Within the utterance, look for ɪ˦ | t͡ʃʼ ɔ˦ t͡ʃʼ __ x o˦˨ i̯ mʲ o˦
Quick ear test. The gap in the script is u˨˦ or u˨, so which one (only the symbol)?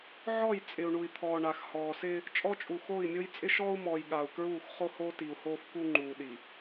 u˨